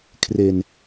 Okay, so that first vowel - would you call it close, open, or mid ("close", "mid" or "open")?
mid